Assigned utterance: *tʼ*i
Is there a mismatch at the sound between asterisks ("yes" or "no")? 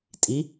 no